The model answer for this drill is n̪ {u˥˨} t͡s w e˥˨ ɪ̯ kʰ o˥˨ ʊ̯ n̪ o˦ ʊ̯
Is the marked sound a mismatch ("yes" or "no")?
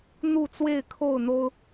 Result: no